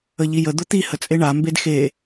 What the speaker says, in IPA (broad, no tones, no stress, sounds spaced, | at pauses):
ə ʎ i j ə d̪ ʊ t̪ i h ə t͡sʼ e ɳ a m b e d x e